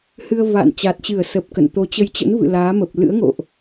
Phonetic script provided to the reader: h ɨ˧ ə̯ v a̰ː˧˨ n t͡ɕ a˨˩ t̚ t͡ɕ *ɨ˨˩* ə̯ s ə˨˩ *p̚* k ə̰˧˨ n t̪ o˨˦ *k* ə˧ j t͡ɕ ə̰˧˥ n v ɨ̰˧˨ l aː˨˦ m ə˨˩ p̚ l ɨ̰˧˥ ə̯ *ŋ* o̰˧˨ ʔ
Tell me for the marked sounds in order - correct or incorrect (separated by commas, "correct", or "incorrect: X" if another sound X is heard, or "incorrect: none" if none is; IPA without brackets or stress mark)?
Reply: incorrect: ɨ˧˩, correct, incorrect: t͡ɕ, correct